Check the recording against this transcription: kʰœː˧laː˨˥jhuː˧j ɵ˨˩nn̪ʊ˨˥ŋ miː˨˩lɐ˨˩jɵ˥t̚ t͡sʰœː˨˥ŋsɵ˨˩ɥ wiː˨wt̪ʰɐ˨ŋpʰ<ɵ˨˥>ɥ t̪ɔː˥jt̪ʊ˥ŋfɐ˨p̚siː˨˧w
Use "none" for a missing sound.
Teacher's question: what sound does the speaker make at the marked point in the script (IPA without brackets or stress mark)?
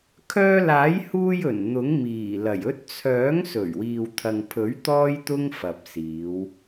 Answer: ɵ˨˥